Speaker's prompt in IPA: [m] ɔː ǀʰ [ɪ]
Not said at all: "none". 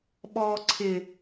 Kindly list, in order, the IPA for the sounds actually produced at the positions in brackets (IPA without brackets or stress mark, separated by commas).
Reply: ɓ, ɪ